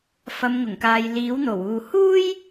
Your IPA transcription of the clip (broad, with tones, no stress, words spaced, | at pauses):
fɐ˨˧mŋʊ˨˩ŋkaː˨j liː˨˥wn̪o˨˩wuː˨ huː˥j